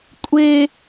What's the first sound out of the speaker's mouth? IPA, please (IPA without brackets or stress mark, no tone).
kʷʼ